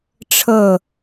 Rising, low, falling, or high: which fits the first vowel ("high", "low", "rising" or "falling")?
falling